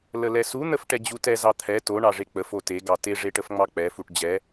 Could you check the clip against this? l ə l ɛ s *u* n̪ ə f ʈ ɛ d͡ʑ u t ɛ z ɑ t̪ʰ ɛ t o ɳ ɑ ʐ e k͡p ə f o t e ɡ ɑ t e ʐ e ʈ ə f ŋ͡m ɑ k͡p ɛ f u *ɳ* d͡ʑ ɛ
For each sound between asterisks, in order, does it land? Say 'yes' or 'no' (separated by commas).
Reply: yes, no